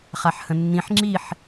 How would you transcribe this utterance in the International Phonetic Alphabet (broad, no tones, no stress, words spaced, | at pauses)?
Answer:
χaħhə̃nːĩħ ŋ͡ǁiħ